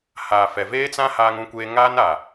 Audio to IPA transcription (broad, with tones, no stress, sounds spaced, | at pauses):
h aː˨ f ɛ˨ v eː˦ t͡s ã˦ h aː˦ ŋ ũ˦ kʷ eː˦ ŋ aː˦ n a˨